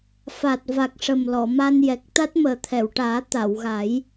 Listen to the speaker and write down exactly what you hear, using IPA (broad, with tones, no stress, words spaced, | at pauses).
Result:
fa˨˩t̚ va˨˩k̚ʂə˨˩mlɔ˨˩˨ ma˧njɛ˨˩k̚ t̪a˦˥t̚məː˨˩t̪ʰɛ˨˩˨wʈaː˨˩˦ t̪a˨˩˨wɣa˨˩˦j